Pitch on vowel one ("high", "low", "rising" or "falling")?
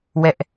high